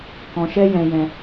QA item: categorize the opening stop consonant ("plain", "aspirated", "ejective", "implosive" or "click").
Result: plain